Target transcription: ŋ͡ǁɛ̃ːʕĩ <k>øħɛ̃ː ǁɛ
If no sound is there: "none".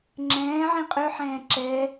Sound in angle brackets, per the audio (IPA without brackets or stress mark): qʼ